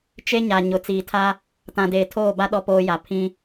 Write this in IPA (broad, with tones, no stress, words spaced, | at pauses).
t͡ʃe˦ɲa˨ ɲʊ˨ t͡siː˨tʰa˦ | tã˨deː˨tʰoː˦˨ba˦ ɗɔ˦poː˦ja˨ pʰĩ˦